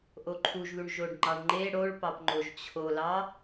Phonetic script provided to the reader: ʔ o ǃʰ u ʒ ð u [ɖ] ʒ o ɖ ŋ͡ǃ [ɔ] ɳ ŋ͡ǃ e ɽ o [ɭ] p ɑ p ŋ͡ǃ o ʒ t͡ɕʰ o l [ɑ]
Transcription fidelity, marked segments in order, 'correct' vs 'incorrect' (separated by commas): incorrect, incorrect, correct, correct